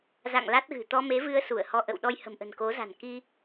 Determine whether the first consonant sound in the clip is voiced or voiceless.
voiced